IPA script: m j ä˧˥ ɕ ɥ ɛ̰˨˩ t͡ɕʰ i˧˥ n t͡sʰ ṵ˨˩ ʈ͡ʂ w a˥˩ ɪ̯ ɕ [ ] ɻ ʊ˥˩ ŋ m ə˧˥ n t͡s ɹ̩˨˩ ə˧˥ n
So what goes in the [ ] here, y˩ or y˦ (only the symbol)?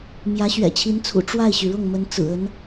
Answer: y˩